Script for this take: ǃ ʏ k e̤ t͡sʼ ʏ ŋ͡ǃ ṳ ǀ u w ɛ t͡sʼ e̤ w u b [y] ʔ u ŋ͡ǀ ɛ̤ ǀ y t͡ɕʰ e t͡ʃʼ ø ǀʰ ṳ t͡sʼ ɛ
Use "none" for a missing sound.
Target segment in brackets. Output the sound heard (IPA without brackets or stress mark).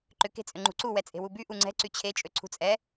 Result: y